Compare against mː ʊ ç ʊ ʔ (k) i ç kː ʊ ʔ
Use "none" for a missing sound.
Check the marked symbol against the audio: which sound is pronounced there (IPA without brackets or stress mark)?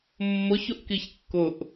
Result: k